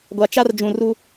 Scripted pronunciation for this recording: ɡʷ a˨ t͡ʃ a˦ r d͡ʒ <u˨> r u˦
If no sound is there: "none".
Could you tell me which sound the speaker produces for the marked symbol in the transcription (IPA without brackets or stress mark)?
ũ˨